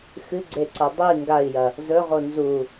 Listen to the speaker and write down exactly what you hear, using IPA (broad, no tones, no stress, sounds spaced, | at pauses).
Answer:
x ɨ ɡ͡ǀ e ǀ ɐ dˤ i ŋ ɡ a i̯ j ɐ | z ɵ ʁ o n z u